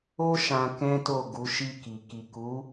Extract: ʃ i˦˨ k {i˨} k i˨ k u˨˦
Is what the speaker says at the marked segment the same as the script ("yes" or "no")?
yes